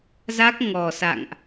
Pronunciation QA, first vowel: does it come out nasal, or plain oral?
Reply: oral